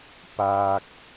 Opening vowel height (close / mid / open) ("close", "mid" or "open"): open